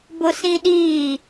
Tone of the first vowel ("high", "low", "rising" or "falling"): high